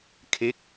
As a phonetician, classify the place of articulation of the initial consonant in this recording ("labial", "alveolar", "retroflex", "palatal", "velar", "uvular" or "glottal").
velar